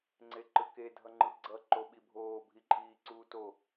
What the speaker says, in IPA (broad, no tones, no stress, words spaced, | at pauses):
ŋ͡ǀeǃɯke dʱʌŋ͡ǃɯɡ͡ǀʌ ǃoɓibʱoː bʱiǃʼiːǀuːto